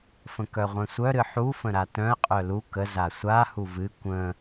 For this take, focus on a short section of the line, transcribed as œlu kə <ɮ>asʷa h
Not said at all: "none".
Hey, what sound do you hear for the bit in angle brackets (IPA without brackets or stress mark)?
z